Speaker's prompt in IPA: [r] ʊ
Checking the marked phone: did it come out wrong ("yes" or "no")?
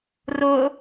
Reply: no